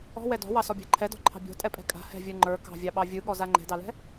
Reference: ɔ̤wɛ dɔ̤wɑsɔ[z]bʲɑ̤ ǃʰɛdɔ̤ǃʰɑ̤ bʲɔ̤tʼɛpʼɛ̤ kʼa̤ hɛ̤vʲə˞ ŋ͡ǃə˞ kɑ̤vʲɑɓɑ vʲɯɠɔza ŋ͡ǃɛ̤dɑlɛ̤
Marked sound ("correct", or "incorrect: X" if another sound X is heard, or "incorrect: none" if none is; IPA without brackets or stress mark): incorrect: none